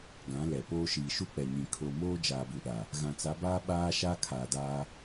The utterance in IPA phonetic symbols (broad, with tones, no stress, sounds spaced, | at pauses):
ɡ ã˨˦ l ɛ˨ p oː˦ ʃ iː˨ ʃ u˦ k͡p ɛ˨ ɲ ĩ˨ kʰ o˨ m oː˦ d͡ʒ aː˨ b u˨ ɗ a˨ | ɣ ã˨ t͡s a˨˦ b aː˦ ɓ aː˦ ʃ aː˦ kʰ aː˨ d aː˦